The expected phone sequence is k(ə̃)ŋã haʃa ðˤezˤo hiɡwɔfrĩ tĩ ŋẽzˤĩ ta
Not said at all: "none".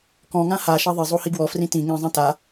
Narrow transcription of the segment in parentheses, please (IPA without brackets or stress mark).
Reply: ɔ̃